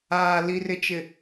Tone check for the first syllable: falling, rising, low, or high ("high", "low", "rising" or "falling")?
low